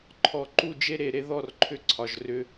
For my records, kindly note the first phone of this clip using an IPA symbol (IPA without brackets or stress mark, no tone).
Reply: ǃʰ